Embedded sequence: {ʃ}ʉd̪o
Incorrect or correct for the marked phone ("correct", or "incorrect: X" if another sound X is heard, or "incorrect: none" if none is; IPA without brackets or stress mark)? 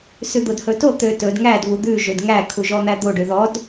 incorrect: s